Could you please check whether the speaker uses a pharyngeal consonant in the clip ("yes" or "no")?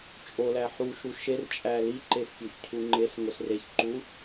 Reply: yes